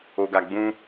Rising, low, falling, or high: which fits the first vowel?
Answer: low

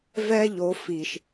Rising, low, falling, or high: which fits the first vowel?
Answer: high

